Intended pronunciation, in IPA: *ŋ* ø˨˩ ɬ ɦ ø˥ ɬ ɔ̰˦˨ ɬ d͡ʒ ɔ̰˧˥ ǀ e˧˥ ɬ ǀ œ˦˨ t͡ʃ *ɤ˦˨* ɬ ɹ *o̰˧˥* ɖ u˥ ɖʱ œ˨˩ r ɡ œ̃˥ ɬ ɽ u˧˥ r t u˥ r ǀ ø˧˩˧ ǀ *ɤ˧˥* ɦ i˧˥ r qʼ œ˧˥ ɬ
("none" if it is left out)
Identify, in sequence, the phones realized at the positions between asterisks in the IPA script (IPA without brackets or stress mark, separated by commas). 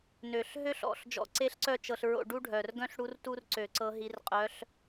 n, ɤ˦˨, o̰˦˨, ɤ˧˥